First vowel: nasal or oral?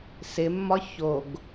oral